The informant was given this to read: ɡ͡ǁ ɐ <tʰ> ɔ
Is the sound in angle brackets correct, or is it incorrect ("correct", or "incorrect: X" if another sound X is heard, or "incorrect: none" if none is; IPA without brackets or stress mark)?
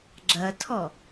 correct